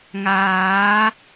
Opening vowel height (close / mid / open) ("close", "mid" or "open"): open